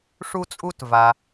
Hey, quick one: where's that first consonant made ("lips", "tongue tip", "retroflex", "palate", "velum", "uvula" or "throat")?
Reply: retroflex